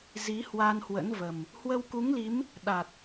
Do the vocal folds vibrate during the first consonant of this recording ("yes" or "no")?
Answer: yes